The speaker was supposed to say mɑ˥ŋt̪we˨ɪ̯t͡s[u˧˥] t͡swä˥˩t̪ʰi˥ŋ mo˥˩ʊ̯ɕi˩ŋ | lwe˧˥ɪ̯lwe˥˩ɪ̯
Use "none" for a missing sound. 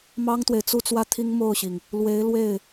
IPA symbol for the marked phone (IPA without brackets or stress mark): u˥˧